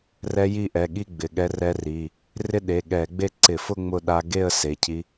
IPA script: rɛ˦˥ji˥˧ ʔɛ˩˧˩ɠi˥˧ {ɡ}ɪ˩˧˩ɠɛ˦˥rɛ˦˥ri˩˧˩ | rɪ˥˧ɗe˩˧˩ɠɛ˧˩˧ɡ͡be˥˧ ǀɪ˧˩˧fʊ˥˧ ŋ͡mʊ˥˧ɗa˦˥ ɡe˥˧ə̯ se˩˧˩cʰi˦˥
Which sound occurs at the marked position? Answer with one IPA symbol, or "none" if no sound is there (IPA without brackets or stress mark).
ɡ͡b